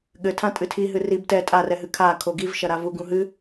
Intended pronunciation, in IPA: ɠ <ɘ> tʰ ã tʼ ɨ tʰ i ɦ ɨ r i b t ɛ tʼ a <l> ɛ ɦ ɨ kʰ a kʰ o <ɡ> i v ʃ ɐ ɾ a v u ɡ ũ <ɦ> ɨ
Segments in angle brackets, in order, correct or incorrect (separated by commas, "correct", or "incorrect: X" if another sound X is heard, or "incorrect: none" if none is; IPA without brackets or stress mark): correct, incorrect: r, correct, correct